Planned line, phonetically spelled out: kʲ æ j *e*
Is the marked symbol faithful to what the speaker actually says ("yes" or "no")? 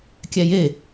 yes